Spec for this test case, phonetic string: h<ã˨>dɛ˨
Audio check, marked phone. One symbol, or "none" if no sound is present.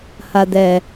a˨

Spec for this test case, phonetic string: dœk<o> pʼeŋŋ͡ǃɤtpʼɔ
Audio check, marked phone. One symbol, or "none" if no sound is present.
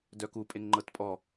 u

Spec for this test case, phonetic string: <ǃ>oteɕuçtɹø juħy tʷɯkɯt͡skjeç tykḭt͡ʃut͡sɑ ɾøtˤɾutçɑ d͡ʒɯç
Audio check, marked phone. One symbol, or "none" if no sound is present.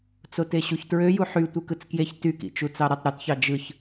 t͡s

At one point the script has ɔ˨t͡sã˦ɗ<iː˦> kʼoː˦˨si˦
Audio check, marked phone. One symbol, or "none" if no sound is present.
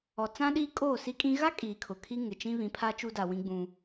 iː˦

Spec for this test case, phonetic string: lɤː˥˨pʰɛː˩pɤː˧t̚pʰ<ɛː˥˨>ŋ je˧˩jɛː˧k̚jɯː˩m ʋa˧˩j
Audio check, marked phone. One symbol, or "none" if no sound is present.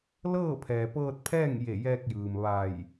ɛː˥˨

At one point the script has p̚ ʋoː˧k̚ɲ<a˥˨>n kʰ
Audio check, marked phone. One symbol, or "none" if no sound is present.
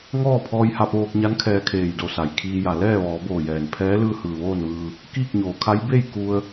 a˧˥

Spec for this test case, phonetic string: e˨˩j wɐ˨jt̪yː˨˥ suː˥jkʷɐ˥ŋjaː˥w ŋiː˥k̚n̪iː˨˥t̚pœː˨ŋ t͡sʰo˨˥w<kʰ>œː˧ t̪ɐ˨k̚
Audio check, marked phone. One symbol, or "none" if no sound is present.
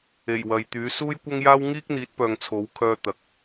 kʰ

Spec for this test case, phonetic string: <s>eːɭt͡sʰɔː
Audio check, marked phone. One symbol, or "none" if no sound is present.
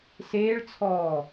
s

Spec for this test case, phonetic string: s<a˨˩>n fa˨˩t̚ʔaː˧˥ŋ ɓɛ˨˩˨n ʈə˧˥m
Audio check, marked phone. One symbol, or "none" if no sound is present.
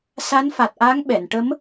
a˧˥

